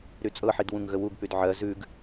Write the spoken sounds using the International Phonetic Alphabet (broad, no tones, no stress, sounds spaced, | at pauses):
ɾ y t͡sʼ ɤ ħ i d w ũ ŋ ɣ ə w u ɡ p y d ʕ ɜ z ʉ ɡ